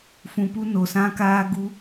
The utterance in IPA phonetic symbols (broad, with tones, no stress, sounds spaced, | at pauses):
f ũ˨ p u˧ n o˨ s ã˦ k aː˦ ɡ u˦